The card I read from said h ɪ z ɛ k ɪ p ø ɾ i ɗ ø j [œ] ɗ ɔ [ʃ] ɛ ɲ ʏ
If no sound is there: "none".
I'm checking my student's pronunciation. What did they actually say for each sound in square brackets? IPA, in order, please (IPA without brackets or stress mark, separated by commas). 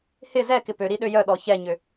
œ, ç